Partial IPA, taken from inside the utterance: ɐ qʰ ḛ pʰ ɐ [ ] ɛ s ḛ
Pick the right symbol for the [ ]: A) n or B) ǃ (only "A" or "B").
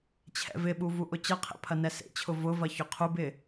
A